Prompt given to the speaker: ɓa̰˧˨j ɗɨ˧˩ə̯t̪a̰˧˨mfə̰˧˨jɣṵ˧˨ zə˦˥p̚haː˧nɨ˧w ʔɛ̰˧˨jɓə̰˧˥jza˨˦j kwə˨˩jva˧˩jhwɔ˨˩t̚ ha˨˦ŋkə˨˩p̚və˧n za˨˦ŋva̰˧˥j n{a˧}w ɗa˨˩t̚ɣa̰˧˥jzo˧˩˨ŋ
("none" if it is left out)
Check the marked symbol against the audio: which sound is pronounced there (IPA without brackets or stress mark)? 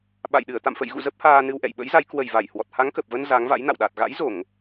a̰˧˨